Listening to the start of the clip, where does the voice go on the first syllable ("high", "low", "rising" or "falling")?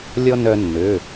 high